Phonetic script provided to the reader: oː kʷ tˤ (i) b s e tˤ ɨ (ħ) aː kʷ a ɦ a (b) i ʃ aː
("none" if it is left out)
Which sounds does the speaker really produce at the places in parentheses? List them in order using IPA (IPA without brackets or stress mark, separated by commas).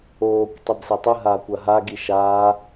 i, ɦ, ɡ